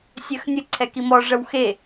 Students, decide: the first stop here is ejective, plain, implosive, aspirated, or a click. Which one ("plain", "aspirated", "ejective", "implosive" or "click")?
click